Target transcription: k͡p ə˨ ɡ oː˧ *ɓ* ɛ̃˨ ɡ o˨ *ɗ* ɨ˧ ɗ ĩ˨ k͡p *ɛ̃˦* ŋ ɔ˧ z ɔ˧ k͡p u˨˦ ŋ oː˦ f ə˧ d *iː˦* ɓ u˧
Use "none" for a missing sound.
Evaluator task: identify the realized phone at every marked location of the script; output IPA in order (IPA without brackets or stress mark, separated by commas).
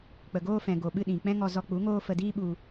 f, ɓ, ɛ̃˦, iː˦